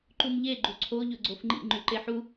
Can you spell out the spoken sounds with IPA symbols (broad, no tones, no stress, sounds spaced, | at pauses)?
ǃ u m ʎ e ɡ͡ǃ u ǀʰ o ʎ ɵ ɡ͡ǀ o f ŋ͡ǃ ḭ ŋ͡ǃ ʉ ǃ e ħ u